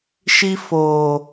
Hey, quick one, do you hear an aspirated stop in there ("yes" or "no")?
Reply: no